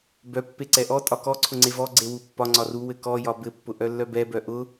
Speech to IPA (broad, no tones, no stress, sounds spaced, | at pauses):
b œ pː e ǀ ɛ ʔ ɔ tʼ ɒ k ɔ ǀʰ ʊ ŋ͡ǀ e v ɔ ɡ͡ǀ e w u pː ɒ ŋ͡ǀ ɒ r u w ɘ k ɔ j ɒ b ɘ pː ʊ ʔ œ lː œ b ɛ b œ ʔ ʊ